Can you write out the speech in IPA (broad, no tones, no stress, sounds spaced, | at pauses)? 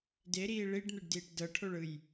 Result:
d e ɾ iː ɭ i ɖ n̪ e ɖ d iː ʈ d ɤ ʈʰ o ɭ ɯ j